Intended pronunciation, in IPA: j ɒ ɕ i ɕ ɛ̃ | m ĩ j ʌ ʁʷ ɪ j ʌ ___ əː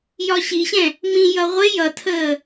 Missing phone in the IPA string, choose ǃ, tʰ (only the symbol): tʰ